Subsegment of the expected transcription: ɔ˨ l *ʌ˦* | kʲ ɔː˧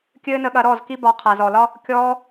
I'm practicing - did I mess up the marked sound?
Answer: yes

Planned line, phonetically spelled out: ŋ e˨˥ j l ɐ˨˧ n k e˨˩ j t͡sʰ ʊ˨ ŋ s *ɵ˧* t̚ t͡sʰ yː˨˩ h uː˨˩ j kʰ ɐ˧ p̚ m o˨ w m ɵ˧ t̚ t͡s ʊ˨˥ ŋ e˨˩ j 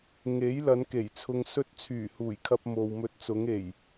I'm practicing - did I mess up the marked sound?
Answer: no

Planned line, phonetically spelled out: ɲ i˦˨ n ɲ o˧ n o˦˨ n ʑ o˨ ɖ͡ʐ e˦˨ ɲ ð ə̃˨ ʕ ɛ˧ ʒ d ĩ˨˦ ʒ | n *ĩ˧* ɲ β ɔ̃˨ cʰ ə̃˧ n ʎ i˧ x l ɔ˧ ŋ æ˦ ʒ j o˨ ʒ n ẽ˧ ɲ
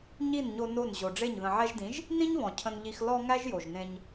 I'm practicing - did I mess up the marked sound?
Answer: yes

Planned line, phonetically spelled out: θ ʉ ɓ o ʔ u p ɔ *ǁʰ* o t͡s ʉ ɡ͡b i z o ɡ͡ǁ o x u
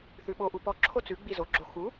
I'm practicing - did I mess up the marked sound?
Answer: no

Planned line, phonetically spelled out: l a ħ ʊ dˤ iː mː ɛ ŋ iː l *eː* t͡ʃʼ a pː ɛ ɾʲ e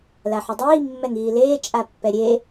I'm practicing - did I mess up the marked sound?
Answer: no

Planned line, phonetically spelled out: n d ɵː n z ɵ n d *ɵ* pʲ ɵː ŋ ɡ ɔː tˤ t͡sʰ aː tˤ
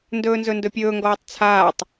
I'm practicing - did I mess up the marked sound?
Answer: no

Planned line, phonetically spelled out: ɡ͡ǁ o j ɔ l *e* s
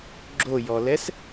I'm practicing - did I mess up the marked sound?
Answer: yes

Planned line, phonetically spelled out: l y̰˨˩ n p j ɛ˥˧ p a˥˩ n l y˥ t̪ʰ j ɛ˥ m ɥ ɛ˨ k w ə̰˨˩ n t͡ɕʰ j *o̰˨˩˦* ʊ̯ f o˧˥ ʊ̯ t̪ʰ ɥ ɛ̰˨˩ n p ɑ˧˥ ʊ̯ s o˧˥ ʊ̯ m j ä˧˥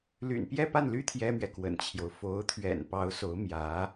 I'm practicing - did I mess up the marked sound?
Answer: yes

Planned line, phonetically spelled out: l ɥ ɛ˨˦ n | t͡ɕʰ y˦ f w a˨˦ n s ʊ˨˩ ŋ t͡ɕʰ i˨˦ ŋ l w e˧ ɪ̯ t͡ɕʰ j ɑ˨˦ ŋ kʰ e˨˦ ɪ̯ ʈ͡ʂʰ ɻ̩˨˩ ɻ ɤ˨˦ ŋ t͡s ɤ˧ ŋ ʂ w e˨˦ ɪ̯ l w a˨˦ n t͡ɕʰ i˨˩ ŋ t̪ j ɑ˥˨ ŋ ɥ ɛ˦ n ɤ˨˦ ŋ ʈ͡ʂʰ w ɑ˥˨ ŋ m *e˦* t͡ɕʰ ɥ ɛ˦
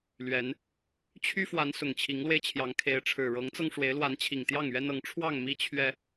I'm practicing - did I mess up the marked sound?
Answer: yes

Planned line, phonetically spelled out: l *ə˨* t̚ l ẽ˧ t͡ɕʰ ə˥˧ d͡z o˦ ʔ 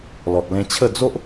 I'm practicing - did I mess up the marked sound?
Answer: yes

